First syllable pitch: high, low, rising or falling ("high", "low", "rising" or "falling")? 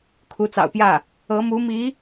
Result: rising